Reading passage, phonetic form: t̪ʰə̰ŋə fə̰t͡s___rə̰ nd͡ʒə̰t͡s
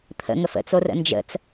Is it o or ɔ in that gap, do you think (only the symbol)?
o